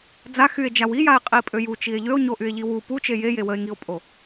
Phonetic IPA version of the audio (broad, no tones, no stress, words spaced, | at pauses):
d͡za xye̯d͡ʒaw ijae̯qʼipʼø jut͡ʃie̯ ʎøo̯ɲoʔye̯ʎi wu put͡ʃe jeje wəe̯ŋio̯pʼo